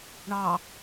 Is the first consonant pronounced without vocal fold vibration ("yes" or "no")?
no